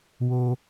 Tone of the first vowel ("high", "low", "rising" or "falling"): high